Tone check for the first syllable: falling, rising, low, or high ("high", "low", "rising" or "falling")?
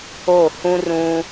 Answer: falling